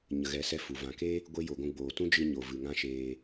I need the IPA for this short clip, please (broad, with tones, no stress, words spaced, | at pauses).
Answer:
ɲə˨ɣɛ˨˦sɛ˧ fu˨vã˧ ke˦ | ɡʷe˦jo˨ɡʷũ˧ɡ͡boː˨ tũ˦d͡ʒɨ˧ɲo˨ vɨ˨ŋã˦ʃeː˧